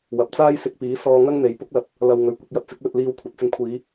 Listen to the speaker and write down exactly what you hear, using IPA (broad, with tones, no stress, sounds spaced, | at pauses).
w ɐ˨ p̚ t͡s aː˥ j s ɪ˧ k̚ p iː˨˥ s ɔː˧ ŋ ɐ˥ ŋ n̪ e˨ j p ʊ˥ k̚ l ɐ˨ t̚ | l ɐ˧ w ŋ ɵ˨˧ ɥ kʷ ɪ˧ k̚ j ɐ˧ t̚ t͡s ɪ˨˥ k̚ l ɵ˧ t̚ l iː˧ w kʷʰ ɐ˨˥ t̚ t͡s ɪ˧ ŋ kʷʰ iː˨˧